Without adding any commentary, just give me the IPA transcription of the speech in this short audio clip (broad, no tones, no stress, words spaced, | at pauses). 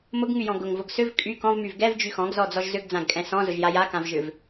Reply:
mʊɡŋyjɔ̃ ɡʊŋvʊɡ sʏv kʼy kɔ̃vmyv ɡɛvd͡ʒy xɔ̃ɡzɔd͡zɔʒ zʏɡd͡zãɡkʼɛ̃ sɔ̃zʊʒja jakãvʒʏv